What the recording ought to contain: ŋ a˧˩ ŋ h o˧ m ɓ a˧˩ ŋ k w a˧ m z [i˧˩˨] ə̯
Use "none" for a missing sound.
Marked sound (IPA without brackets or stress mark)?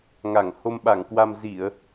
i˧˩˨